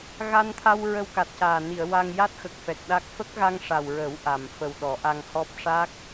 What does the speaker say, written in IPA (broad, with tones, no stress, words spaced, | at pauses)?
ɣa˧nt̪ʰa˧w ɹə˧wka˨˩t̚caː˨˩ ni˨˩˨ə̯ wa˧ŋ ja˦˥t̚xə˨˩k̚fɛ˨˩k̚ ɗa˦˥k̚ fə˦˥k̚ɣa˧ŋ ʂa˨˩wɹə˨˩˦w ʔa˨˩m fə˨˩w ɗɔ˨˩˦ʔa˧ŋhɔ˦˥p̚ ʂa˦˥k̚